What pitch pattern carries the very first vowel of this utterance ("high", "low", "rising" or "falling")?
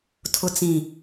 low